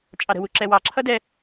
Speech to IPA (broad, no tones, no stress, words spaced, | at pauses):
t͡ʃʼɑɾə̤ wuǁɛwɑ ǁʰʌdɛ